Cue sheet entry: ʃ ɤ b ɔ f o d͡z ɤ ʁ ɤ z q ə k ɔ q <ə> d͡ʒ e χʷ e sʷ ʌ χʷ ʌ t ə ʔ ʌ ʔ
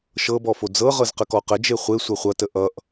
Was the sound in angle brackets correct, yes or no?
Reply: yes